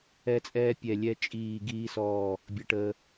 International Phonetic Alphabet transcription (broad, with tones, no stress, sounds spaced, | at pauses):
ɛ˧ t͡sʼ ɛː˧ pʲ ɛ˧˩ lʲ ɛ˧ t͡ʃʼ iː˧˩ ɡ iː˧ s ɔː˧˩ | bʲ ə˧ ʈ əː˧